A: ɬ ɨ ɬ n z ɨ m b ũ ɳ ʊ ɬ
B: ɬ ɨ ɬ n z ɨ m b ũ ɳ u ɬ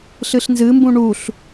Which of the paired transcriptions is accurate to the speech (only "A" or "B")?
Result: B